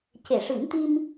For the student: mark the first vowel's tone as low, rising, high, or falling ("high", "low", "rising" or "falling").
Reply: low